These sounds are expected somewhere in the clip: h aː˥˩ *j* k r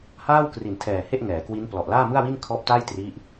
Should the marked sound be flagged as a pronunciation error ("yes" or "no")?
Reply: yes